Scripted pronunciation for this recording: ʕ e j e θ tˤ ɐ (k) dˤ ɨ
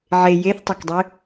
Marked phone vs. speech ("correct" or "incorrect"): correct